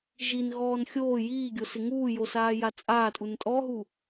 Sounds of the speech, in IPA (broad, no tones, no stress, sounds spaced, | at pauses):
ʒ i n ɣ ɔː n xʲ oː j iː ɡʲ o s ɪ ŋ uː j o s aː j a t͡sʼ aː tʼ u n tʼ ɔ ɦ u